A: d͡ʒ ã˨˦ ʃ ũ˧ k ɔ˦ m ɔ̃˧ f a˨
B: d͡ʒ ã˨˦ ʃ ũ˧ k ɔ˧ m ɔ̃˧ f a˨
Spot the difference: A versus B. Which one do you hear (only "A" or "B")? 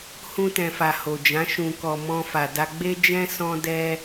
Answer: B